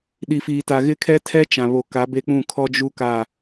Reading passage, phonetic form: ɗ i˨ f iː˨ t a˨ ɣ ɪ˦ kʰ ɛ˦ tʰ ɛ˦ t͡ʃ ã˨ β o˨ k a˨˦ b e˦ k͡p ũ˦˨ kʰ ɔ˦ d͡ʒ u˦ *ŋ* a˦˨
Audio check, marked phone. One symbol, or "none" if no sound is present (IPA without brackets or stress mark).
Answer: k